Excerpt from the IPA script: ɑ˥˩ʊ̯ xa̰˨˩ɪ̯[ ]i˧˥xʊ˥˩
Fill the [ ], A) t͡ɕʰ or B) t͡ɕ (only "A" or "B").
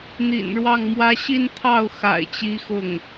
B